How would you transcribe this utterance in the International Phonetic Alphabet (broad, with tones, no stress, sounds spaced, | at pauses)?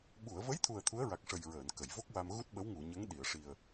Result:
ɓ u˨˩˨ ə̯ v ə˧˥ j t̪ʰ u˨˩ ə̯ t̪ʰ u˧˥ ə̯ ɹ a˨˩ k̚ ʂ ə˨˩ j ɹ əː˨˩˨ n k ə˨˩˨ j v o˦˥ k̚ w a˧ m ɣ u˦˥ t̚ ɓ ə˧˥ w ŋ u˨˩˨ ɲ ə˧˥ ŋ ɗ i˨˩˨ ə̯ ʂ i˨˩ ə̯